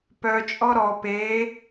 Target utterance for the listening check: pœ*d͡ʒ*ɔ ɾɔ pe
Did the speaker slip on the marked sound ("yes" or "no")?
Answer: yes